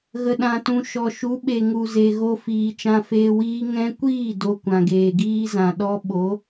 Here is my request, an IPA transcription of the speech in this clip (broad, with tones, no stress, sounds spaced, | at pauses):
ɣ ə˨ ɗ ã˨ t ũ˨ ʃ ɔ˨ ʃ u˨˦ ɓ e˨ ŋ u˨ z e˨ ɣ o˧ f iː˨ t͡ʃ ã˧ f eː˧ w iː˦ ŋ ɛ̃˦ kʷ iː˦˨ d o˨ kʷ ã˨ ɡ eː˨ ɡ iː˦ z ã˨ ɗ ɔ˦ ɓ o˨˦